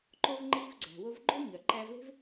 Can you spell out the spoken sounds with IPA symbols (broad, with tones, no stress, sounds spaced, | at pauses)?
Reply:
ǃ o˧ v ŋ͡ǃ iː˧ v ɡ͡ǀ æ̤˩ w o˧ v ɡ͡ǃ o˥ ɲ œ˩ ǃ æ˧ v l e̤˥ v